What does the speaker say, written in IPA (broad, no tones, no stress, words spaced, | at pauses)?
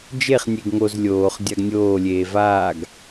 d͡ʒeχ nʲeɡŋoz lʲoːχ dʲaɡnʲoː lʲeːvaːɡ